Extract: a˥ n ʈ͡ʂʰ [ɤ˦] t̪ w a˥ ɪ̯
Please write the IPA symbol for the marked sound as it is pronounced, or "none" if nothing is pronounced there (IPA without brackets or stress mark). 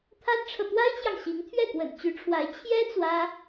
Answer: ɤ˨